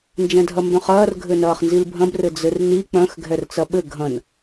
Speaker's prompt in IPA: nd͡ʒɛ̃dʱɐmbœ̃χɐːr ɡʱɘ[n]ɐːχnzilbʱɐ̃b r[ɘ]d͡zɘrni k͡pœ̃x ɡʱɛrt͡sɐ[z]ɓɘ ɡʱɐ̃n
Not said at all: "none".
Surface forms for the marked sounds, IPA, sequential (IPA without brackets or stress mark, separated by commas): n, ɘ, none